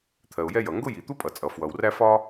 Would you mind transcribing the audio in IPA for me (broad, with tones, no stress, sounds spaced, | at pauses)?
t̪ʰ ɜ˩ ʊ̯ j ɛ˥ j ʌ˩ ŋ ɡ ʊ˥ j i˩ t̪ u˥ pʼ ʌ˩ t͡sʼ ʌ˩ f w ʌ˩ w r æ˥ f ɒ˥